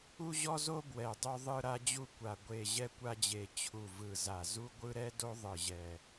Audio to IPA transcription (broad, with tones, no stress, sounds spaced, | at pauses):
u˦ ʑ ɔ˦ z o˦ b w ɛ˨˩ dˤ o˦ ðˤ ɯ˦ ɾ a˦ d͡ʑ u˦ kʷ a˨˩ ɡʷ e˨˩ ʑ ɛ˦ kʷ a˦ d͡ʑ e˨˩ t͡ɕʰ u˨˩ v ɯ˨˩ z a˨˩ z u˦ ɡʷ ɯ˦ ɾ ɛ˦ d o˦ ðˤ ɯ˨˩ ʑ ɛ˨˩